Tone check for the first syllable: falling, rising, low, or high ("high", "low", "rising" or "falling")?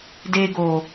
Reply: low